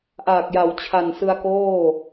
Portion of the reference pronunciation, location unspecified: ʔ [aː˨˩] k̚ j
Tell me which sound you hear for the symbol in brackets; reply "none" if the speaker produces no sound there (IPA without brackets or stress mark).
aː˨˩